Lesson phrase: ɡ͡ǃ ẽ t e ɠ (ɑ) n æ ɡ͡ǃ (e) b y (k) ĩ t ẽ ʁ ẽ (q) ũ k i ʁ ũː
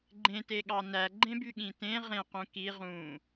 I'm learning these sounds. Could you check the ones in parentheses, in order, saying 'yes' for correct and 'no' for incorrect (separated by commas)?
yes, no, no, yes